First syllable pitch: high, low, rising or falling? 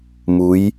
rising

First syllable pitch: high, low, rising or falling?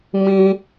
high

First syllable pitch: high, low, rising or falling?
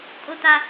high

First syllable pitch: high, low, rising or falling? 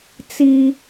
high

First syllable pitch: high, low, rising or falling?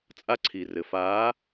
high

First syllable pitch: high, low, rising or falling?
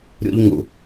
high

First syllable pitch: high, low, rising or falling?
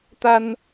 high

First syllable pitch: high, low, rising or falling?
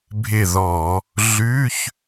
falling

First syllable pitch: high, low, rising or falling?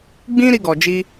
high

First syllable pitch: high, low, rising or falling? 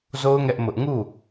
high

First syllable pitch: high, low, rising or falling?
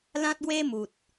high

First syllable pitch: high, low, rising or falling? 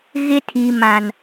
high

